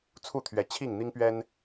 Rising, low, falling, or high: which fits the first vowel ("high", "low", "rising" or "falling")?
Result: falling